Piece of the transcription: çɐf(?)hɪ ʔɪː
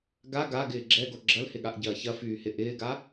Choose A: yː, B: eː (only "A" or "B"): A